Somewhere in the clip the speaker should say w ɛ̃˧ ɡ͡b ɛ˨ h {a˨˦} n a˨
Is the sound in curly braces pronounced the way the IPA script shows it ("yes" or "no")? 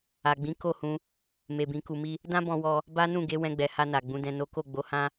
no